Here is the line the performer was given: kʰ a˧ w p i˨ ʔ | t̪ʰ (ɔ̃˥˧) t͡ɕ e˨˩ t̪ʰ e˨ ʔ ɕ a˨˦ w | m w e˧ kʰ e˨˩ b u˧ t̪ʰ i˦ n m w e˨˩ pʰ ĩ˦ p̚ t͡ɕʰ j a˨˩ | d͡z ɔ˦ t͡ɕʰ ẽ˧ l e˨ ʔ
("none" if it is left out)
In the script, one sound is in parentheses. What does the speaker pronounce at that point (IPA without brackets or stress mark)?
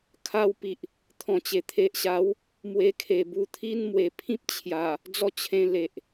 ɔ̃˨˩